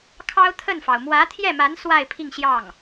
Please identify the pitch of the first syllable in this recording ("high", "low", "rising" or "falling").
high